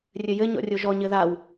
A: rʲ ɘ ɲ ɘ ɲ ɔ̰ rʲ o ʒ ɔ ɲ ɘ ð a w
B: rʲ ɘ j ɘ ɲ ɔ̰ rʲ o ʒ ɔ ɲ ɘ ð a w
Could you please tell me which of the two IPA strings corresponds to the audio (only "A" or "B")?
B